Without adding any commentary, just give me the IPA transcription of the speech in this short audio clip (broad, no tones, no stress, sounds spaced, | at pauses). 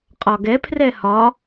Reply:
qʼ ɒ ɡ ɛ pʰ r ɛ h ɒ